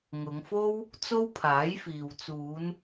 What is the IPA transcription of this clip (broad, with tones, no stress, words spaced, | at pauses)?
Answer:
ŋʊ˨˧ŋfo˥w | t͡so˥wpʰaː˨˥jfiː˨w t͡suː˨˧n